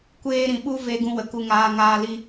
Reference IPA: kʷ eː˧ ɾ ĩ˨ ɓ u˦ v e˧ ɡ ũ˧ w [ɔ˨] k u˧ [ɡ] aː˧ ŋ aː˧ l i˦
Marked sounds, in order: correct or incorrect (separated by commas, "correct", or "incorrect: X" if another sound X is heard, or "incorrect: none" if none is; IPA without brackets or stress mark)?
incorrect: ə˨, incorrect: ŋ